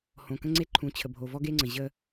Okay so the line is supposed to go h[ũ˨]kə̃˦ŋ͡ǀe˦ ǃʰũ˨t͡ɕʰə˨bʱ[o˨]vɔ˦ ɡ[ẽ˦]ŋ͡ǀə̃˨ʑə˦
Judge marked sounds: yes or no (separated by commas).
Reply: no, yes, no